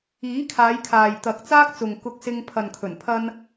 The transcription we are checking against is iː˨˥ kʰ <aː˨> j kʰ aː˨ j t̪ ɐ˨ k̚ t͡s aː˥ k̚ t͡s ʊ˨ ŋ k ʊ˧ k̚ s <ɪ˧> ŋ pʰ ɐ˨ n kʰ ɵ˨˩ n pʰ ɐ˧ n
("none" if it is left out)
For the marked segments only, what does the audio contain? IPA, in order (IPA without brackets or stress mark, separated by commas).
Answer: aː˨˧, ɪ˧